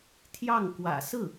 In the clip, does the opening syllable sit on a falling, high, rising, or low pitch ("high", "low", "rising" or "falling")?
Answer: falling